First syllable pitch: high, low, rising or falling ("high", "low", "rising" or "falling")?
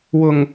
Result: low